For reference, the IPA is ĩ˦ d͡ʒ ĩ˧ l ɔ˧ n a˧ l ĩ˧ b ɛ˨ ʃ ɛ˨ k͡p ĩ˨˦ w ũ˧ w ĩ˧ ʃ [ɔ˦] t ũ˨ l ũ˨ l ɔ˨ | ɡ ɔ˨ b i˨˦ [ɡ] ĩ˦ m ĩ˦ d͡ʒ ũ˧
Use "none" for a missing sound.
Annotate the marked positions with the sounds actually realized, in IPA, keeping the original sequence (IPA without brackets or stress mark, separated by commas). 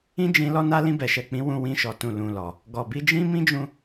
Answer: ɔ˨, d͡ʒ